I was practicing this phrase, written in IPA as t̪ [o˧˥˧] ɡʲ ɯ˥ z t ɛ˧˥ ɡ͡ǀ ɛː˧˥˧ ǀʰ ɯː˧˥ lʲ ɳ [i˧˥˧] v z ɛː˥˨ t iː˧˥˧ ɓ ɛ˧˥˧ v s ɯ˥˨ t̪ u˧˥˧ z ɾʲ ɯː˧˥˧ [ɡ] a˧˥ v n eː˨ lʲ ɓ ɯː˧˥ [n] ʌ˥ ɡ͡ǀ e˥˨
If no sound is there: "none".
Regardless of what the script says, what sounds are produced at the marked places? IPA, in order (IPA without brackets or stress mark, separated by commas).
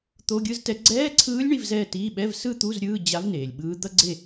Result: o˧˥˧, i˧˥˧, d͡ʑ, d̪